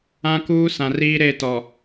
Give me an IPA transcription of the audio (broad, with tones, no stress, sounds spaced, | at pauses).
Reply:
ã˦ k uː˦ s ã˨ r iː˦ ɾ e˦˨ t ɔ˨